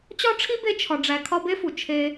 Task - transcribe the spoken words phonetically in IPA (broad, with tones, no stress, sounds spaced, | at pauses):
t͡ɕ ɒ˥ ʈ͡ʂʰ i˥ b e˦ t͡ʃʰ ɒ˨ ɖ͡ʐ æ˨ kʰ ɒ˦ b e˥ f u˩ t͡ʃʰ e˦